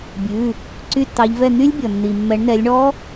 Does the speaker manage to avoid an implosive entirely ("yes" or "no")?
yes